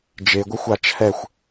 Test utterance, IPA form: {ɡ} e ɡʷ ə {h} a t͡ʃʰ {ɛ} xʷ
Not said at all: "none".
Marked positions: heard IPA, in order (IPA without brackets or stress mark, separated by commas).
d͡ʒ, xʷ, ɛ